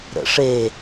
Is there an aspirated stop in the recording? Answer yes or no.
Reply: no